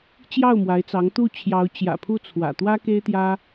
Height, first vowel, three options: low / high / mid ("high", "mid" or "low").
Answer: low